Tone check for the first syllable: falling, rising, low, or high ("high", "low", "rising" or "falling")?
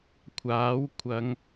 rising